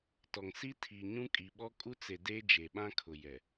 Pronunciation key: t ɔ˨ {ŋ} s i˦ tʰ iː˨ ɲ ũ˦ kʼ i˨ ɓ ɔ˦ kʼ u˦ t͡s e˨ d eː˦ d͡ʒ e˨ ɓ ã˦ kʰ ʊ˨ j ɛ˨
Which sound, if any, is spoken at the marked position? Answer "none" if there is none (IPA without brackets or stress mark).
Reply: ŋ